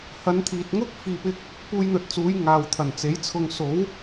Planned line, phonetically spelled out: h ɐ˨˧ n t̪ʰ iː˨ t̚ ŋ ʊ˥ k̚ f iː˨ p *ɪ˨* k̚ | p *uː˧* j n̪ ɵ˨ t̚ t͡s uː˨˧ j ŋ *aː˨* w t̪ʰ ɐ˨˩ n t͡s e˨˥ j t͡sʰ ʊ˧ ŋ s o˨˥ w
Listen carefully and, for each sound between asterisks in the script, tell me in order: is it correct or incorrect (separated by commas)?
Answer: incorrect, correct, correct